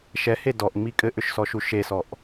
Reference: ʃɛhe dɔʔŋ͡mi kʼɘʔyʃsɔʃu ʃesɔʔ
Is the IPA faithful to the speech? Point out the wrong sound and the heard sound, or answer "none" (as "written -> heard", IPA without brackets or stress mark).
y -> ʏ